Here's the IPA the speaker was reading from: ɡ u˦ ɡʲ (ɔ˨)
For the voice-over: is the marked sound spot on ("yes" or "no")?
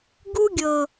no